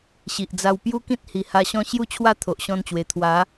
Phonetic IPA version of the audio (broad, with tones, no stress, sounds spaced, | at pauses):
ɕ i˨ ʔ d͡z a˧ w p j u˦ k ĩ˦ t̚ h i˨˩ h a˧ ɕ ɔ̃˦ ɕ j u˥˧ t͡ɕʰ w a˥˧ t̪ʰ o˨ ʔ ɕ ɔ̃˧ n t͡ɕ w e˨˩ t̪ʰ w a˨˦